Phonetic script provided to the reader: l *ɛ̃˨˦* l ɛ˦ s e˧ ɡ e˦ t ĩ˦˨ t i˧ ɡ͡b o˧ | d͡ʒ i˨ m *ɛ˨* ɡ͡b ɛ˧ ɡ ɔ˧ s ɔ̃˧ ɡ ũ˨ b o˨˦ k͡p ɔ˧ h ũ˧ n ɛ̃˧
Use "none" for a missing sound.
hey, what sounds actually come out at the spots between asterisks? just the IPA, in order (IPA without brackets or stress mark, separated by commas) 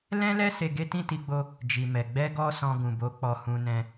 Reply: ɛ̃˦, ɛ˨